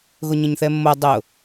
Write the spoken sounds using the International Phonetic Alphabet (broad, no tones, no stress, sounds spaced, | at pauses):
ɣ ʊ ɲ ə̃ ɲ θ ɛ mː o dˤ ʊ